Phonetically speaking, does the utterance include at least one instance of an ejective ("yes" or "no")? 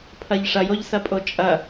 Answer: yes